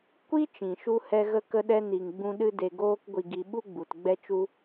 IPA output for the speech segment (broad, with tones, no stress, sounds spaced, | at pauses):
kʷ i˦ t͡ʃ ĩ˨ ʃ u˧ h ɛ˧ ɣ ə˧ k ə˧ ɗ ɛ˧ n i˨ ŋ ɡ͡b ũ˧ ɗ ɨ˧ d e˨ ɡ oː˧ k ɡʷ i˨ ɡ i˨ ɓ u˧ ɡ͡b u˨ t ɡ͡b ɛ˧ t͡ʃ u˧